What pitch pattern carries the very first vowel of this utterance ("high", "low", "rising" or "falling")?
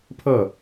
falling